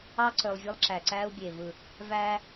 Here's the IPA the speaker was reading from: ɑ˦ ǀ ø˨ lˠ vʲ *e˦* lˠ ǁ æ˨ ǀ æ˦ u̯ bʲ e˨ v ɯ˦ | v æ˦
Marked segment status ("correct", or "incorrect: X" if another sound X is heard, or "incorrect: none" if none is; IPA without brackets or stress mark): correct